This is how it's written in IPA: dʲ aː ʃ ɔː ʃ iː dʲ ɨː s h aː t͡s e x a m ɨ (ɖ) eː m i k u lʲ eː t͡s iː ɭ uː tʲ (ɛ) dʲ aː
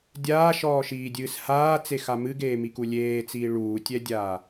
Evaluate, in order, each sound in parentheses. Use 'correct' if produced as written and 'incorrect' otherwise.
incorrect: ɡ, correct

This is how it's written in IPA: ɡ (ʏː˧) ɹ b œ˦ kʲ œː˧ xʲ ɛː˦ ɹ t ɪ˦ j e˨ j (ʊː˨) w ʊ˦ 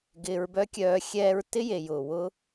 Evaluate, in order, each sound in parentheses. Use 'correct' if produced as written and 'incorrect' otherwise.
incorrect: ɪː˧, correct

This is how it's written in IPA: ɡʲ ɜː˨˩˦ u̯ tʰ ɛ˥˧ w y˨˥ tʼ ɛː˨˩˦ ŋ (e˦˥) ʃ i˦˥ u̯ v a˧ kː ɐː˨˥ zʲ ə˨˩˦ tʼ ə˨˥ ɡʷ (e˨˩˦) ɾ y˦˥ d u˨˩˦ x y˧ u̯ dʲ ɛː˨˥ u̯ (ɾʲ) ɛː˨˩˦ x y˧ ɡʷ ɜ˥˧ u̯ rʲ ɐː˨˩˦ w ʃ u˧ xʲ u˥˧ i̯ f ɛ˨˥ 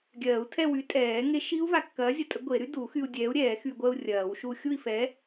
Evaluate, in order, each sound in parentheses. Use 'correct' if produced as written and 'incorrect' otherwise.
correct, correct, correct

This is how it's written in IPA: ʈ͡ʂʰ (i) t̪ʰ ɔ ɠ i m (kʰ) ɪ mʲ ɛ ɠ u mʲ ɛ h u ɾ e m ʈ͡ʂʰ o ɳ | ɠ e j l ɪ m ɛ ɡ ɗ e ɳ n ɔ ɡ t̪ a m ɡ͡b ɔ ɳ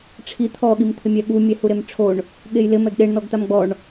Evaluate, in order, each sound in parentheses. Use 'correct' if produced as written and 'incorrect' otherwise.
correct, incorrect: t̪ʰ

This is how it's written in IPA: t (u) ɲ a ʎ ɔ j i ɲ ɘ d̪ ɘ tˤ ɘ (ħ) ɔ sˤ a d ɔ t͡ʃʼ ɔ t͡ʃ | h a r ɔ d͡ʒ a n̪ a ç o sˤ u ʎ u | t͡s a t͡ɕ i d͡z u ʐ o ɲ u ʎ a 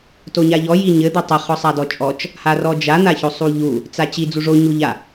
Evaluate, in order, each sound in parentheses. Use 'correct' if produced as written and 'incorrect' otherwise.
incorrect: o, incorrect: χ

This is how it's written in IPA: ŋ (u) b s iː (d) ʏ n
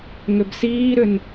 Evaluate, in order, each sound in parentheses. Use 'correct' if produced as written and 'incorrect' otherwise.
incorrect: ʏ, incorrect: ɾ

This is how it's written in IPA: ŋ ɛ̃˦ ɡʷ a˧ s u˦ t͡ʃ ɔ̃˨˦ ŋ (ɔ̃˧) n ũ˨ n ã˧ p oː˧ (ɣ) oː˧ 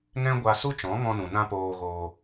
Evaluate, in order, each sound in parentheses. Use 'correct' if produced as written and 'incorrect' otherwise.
correct, correct

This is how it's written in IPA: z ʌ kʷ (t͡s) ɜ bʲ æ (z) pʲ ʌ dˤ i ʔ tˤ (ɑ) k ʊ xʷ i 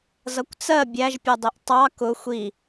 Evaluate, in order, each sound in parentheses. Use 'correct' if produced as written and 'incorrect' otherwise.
correct, incorrect: ʒ, correct

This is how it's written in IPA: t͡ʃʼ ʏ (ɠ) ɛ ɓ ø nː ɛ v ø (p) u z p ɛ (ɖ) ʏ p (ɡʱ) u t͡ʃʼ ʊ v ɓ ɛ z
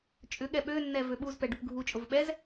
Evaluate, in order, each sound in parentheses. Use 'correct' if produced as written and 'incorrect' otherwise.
correct, incorrect: ɓ, correct, correct

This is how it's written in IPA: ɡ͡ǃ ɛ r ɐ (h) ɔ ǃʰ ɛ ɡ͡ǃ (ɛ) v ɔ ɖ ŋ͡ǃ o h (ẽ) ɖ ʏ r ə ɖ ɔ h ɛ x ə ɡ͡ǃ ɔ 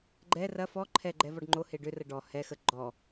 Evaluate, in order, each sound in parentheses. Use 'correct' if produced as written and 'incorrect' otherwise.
incorrect: f, correct, incorrect: e

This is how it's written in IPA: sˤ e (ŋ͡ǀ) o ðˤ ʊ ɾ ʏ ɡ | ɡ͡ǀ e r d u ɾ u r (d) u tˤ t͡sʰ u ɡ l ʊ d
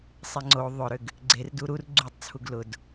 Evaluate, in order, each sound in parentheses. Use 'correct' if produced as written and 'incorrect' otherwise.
correct, incorrect: ɡ͡ǀ

